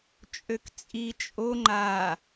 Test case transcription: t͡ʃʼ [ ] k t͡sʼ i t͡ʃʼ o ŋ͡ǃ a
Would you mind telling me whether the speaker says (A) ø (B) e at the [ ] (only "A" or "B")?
A